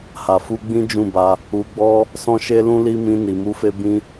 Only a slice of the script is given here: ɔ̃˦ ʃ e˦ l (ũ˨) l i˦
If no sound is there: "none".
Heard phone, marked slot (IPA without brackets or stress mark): ũ˦